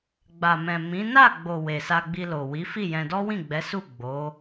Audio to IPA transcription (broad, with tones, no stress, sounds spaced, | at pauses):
ɡ͡b a˨ m ɛ̃˨ m ĩ˨˦ n a˦˨ ɡ͡b o˨ w e˨ s a˧ ɡ͡b i˧ l o˨ w i˨˦ f i˦˨ j ɛ̃˧ d ɔ˦ w ĩ˦˨ ɡ͡b ɛ˨˦ s u˦˨ ɡ͡b o˨˦